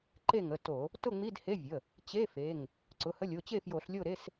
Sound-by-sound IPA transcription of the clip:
ǃ e˥˨ ŋ ə˩˧˩ t o˧˩˧ | t ʊ˥˨ ŋ͡m i˧˥˧ d h e˧˥˧ vʲ ə˩˧˩ | t͡ɕ e˧˥˧ f e˩˧˩ ŋ | ǀ ʊ˩˧˩ h ə˧˥˧ lʲ o˩˧˩ t͡ɕ e˥˨ f j o˧˩˧ ɬ lʲ o˥˨ ɾ e˧˥˧ s

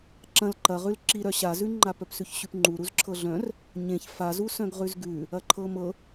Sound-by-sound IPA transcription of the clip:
ǁ ɐ̃ l ǃ ɐ ʁ ʉ l ǁ i ɾ œ ɕ a z ʉ ŋ͡ǃ a p œ p s ʉ ç ɕ ʉ p ŋ͡ǃ u ɾ u z ǁʰ ɤ ɮ œ̃ r | ɲ ẽ ç f a z u s œ̃ ɡ ʁ ʉ z ɡ ʉ | ɐ ǃʰ ɤ m ɤ

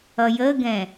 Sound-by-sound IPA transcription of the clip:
ʌ j ə ɡ ɛ̃

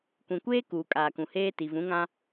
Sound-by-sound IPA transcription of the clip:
kʷ ĩ˨ kʷ eː˦ k uː˨ kʼ aː˨ k ũ˨ h eː˦ t i˨ v ũ˨˦ ŋ ã˦

